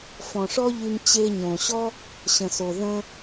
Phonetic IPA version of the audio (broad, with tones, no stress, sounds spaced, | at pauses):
f ɔ̃˨ ʂ ɔ˦ ʎ y˧ m t͡ɕ e˧ ɲ õ˨ ɕ ɔ˦ | ɕ ə̃˨ s o˨ ð ə̃˧